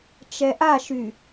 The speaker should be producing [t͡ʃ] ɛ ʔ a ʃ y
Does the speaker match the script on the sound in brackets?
yes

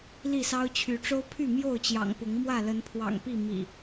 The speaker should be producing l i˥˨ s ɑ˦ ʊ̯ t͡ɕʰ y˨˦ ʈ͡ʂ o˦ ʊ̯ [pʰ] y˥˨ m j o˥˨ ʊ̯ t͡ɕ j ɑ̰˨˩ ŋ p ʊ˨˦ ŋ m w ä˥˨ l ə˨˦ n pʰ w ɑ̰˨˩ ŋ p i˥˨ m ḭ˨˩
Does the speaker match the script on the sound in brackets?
yes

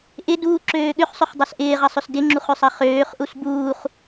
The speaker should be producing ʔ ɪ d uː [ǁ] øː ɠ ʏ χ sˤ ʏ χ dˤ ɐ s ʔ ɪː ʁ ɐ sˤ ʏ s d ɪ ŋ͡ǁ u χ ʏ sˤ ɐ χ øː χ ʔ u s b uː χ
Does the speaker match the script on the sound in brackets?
yes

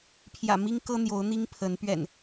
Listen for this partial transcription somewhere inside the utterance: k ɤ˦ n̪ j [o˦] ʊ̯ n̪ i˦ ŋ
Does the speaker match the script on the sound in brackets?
no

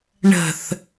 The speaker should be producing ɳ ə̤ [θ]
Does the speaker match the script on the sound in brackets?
yes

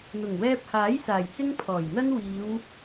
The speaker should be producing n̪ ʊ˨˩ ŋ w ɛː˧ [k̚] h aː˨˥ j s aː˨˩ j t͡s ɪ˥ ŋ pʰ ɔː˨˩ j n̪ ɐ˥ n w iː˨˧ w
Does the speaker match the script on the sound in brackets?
no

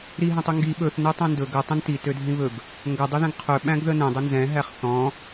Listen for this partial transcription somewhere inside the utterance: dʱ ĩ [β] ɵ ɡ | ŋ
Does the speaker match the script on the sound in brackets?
yes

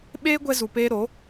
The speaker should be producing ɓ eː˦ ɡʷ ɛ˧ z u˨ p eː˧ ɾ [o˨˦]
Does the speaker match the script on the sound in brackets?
yes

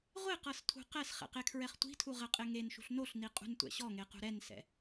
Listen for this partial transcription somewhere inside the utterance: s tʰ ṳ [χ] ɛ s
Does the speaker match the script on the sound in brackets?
no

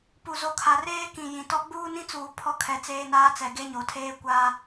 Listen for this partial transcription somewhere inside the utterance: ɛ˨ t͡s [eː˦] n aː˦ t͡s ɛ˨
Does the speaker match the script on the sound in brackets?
yes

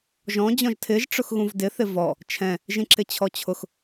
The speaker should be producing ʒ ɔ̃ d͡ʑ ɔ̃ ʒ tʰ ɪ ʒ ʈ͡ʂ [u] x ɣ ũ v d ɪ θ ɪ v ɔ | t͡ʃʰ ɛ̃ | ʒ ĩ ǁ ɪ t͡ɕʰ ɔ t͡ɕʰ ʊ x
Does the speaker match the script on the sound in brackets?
no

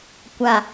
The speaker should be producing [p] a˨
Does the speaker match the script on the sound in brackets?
no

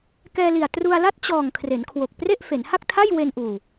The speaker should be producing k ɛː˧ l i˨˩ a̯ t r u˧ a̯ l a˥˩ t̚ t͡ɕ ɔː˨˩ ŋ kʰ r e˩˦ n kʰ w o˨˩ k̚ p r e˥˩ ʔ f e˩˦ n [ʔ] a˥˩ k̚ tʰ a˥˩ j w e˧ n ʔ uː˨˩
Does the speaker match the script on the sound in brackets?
no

